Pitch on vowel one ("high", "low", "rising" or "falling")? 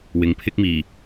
rising